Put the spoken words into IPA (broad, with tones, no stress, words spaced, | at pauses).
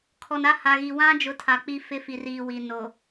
kʰɔ˨na˦ ha˨ɣi˨ wã˦d͡ʒʊ˨˦ tʰa˨k͡pi˦ fɪ˦fi˨riː˨wi˨ no˨